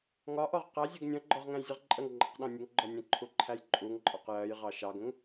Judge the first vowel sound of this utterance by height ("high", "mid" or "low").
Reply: low